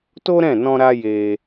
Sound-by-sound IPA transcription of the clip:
t o˦ ɾ ɛ̃˦˨ n ɔ̃˧ ɾ a˧ j e˧

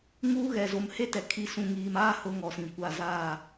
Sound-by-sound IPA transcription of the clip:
ŋ uː˦ ɣ ɛ˨ z o˨ m h e˦ t ɛ˨ kʰ i˨ s ũ˨ ŋ iː˨ m aː˦ h ʊ˦ ŋ ɔ˨ s ĩ˨ kʷ a˦˨ z aː˦˨

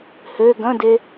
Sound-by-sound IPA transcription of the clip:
h ø ɡ ɐ̃ d e

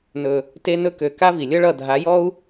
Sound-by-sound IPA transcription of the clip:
n ɵ˧ | t e˧ n ɵ˧ k ø˨ k a˦ v i˨ lʲ ʌ˦ ɭ ʌ˦˨ dʱ a˨˦ j ɔ˦ u̯

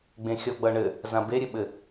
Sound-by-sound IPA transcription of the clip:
ɡ͡b ẽ xʲ ɔ ɡ͡b ʌ ɳ ɘ | z ã b e ɾʲ ɘ ɓ ɘ

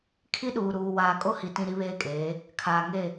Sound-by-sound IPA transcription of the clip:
kʰ i˦ ɗ uː˨ ɾ uː˨ w aː˨ kʼ o˦ h i˨ t ĩ˦ ɾ i˦ β eː˦ kʼ eː˨˦ | kʰ aː˨ ŋ e˦˨

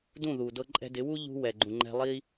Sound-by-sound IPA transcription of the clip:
d ũ˦˨ ð u˨ d ɤ˧ ǃʼ ɛ̤˧ d ɪ˨˦ w u˦ ʎ ṳ˧ w ɛ˨ ɡ͡ǃ ũ˨ ŋ͡ǃ ɛ̤˧ lˠ i˦

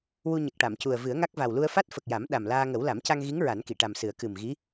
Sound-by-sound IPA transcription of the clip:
w u˧ ɲ ə˨˩ k̚ ʈ a˨˩˨ m c u˨˩ ə̯ v ɨ˨˩˦ ə̯ ŋ a˦˥ k̚ v a˨˩ w l u˧ ə̯ f a˦˥ t̚ f ə˨˩ k̚ j a˨˩˦ m ɗ a˨˩ m l aː˧ ŋ ə˨˩˦ w l a˨˩˦ m c a˧ ŋ ɣ i˧˥ ŋ ɹ a˨˩˦ n k i˨˩˨ ʈ a˨˩ m s ɨ˨˩˦ ə̯ k ɨ˨˩ m ɣ i˧˥

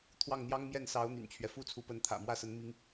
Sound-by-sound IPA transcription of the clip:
t̪ʰ w ɑ˥˩ ŋ n̪ j ɑ˥ ŋ m j ɛ˥˩ n s ɑ˧˥ ʊ̯ n̪ y̰˨˩ n t͡ɕʰ ɥ ɛ˦ f u˥ t͡sʰ u˧˥ p ə˧˥ n t̪ʰ ä̰˨˩ m w ä˥˩ s ə˧˥ n m i˥ ŋ

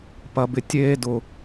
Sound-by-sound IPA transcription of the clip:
p ɐ˨ b ɪ˨ tʲ eː˧ d ʊ˨

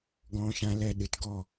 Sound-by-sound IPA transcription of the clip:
ɡ ɔ̃˦ ʃ ã˦ l ɛ˧ ɗ ɨ˨ t ɡ ɔ˦˨

